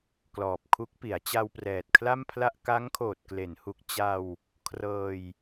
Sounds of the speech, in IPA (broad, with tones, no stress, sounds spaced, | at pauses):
k l ɔː˨˩ p̚ kʰ u˦˥ k̚ p i˩˦ a̯ t͡ɕ a˧ w p r ɛː˨˩ t̚ kʰ l a˥˩ m pʰ l a˥˩ ʔ k a˦˥ ŋ kʰ oː˨˩ t̚ k l e˩˦ n h u˨˩ k̚ t͡ɕ a˧ w | kʰ r ɤː˧ j